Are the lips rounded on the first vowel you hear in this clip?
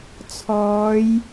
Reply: yes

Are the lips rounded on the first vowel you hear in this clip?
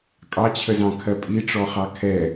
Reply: no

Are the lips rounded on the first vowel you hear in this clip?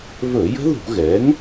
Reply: yes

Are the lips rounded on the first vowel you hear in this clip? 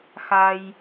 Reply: no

